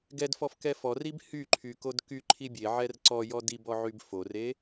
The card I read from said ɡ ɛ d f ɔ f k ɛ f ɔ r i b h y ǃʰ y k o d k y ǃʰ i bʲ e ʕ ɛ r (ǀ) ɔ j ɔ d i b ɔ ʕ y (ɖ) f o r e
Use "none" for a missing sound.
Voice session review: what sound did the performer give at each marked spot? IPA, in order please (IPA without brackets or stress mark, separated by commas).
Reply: ǀ, b